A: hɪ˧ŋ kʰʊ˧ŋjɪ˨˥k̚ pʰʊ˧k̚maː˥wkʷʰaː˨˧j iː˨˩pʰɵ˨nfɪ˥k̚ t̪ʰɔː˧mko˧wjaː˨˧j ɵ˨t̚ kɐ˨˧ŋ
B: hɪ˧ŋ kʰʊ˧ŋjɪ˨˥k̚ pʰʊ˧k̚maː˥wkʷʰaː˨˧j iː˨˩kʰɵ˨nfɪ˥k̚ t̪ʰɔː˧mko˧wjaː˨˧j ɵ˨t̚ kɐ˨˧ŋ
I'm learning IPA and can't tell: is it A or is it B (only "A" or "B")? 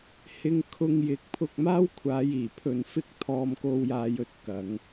A